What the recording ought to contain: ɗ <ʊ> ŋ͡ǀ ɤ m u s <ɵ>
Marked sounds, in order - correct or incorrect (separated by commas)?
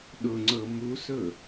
correct, correct